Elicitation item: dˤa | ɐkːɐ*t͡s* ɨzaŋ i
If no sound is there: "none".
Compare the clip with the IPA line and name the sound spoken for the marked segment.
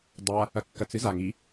t͡s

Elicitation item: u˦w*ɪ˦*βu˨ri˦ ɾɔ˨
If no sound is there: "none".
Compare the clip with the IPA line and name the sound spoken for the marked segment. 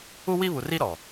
i˦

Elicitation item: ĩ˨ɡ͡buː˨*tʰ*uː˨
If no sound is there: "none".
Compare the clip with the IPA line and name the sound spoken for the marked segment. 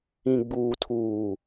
tʰ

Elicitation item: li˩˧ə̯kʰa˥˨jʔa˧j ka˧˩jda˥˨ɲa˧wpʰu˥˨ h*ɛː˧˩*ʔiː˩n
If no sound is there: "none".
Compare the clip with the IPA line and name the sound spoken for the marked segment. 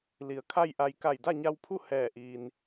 ɛː˧˩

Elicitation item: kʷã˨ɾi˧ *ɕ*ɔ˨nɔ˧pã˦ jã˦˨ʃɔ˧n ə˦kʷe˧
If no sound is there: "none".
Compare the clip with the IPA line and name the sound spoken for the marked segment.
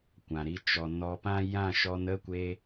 t͡ʃ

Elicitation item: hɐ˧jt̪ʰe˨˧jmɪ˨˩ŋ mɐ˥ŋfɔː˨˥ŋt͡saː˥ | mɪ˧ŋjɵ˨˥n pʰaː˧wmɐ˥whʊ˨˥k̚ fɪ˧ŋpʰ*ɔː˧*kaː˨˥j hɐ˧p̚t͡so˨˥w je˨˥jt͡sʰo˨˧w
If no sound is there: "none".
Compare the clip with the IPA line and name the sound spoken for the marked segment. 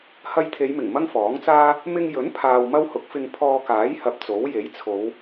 ɔː˧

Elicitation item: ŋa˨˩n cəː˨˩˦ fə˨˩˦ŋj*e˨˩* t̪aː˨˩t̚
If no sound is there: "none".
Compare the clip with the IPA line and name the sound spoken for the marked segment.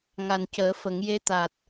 e˧˥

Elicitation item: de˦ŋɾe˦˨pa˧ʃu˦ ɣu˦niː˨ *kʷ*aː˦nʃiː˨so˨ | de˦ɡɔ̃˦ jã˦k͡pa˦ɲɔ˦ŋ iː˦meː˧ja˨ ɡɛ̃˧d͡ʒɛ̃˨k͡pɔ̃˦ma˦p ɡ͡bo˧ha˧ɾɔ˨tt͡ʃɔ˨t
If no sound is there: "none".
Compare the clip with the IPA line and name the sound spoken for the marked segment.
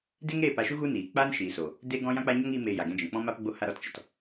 k͡p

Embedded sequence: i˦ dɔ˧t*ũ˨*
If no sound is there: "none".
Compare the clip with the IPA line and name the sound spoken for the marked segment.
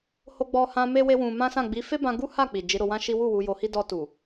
u˨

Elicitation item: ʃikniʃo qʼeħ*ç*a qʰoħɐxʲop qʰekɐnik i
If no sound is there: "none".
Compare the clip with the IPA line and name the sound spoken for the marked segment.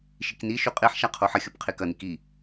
ʃ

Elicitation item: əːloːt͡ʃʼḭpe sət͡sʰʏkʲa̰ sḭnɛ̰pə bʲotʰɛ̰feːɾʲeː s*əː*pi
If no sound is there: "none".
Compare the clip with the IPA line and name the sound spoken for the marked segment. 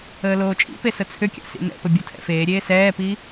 ɛː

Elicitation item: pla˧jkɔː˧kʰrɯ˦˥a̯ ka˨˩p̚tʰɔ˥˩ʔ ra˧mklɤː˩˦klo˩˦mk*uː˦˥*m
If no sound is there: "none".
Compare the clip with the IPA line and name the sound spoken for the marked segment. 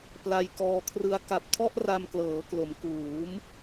uː˩˦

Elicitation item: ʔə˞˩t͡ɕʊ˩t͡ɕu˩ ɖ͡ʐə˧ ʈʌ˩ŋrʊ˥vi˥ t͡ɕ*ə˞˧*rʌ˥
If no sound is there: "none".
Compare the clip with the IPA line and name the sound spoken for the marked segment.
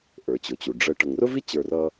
ə˞˧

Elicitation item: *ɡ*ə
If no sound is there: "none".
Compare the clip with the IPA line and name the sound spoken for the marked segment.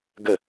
ɡ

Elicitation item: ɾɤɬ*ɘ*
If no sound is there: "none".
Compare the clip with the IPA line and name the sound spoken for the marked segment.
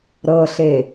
e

